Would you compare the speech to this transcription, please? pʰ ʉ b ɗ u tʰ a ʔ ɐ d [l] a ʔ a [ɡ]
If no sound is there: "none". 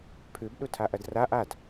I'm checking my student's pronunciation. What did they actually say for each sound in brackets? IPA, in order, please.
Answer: r, d

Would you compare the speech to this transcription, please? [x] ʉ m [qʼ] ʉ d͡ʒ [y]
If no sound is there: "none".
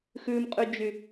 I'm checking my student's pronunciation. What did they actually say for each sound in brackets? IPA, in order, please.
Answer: x, qʼ, y

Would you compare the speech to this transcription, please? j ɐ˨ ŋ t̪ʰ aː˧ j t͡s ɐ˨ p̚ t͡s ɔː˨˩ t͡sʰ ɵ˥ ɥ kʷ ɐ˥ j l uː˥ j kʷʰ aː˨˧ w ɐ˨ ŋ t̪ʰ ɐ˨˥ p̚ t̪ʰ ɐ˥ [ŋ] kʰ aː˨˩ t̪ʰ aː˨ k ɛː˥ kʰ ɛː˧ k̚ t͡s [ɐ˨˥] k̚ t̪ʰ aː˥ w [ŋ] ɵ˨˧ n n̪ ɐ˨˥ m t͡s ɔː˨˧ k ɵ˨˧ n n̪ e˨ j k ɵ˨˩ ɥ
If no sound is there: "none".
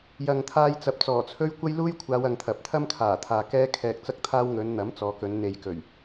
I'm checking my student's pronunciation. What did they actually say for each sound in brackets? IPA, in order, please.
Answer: m, ɐ˥, ŋ

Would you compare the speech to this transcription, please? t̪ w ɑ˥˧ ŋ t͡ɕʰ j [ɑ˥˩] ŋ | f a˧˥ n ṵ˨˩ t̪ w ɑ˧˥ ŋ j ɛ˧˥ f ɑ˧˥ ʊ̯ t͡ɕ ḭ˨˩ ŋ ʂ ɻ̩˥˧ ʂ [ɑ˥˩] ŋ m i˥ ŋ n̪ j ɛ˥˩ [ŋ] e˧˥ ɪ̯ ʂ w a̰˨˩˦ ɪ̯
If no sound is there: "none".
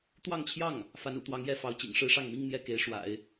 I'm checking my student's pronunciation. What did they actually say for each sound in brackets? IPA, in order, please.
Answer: ɑ˥˩, ɑ˥˩, k

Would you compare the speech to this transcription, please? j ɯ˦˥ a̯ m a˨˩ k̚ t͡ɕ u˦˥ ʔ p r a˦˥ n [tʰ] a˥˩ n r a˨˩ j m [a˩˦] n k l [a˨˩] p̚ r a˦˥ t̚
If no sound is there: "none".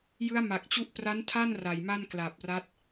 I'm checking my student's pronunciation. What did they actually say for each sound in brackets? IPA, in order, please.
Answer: tʰ, a˥˩, a˨˩

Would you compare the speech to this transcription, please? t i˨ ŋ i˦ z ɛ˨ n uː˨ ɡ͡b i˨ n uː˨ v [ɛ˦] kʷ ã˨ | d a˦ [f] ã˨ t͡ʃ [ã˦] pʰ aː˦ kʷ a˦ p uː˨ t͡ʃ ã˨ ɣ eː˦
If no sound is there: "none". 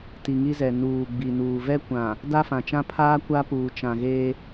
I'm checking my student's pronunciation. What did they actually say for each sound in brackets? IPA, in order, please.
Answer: ɛ˦, f, ã˦

